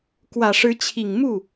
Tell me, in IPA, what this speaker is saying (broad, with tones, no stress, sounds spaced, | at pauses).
k w ä˨˩ ʂ ɻ̩˧˥ t͡ɕʰ i˨˩ ŋ m u˥˩